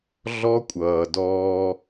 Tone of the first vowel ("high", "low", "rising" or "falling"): high